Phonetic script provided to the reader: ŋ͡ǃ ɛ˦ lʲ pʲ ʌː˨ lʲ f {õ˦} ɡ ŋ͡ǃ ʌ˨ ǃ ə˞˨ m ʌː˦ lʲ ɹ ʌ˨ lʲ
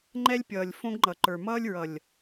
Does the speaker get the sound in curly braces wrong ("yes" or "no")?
no